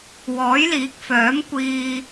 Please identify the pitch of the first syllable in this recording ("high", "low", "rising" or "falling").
rising